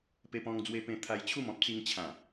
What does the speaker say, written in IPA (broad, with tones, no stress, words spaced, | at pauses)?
pe˧pɔ̃˧ŋd͡zwe˧ pẽ˧ t̪ʰa˧jt͡ɕʰu˥˧mɔ̃˦p̚ t͡si˧ŋt͡ɕʰã˨˩